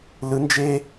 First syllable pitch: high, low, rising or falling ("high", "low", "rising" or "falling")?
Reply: rising